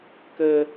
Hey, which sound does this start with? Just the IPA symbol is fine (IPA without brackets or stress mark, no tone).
k